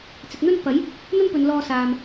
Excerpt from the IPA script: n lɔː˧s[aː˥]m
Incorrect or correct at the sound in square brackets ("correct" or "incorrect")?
incorrect